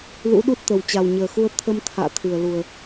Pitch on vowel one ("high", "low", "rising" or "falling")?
rising